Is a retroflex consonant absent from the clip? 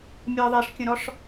no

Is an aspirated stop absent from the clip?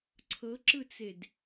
no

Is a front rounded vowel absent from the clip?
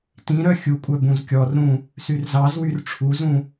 no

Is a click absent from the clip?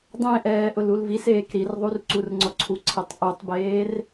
no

